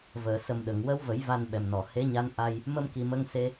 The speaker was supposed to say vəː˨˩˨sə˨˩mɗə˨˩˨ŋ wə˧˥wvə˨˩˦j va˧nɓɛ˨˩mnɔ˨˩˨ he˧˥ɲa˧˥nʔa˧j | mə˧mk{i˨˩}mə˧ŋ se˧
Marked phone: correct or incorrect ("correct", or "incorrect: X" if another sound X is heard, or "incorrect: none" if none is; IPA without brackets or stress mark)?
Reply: correct